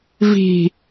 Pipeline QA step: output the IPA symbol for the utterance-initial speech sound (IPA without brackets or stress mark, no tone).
v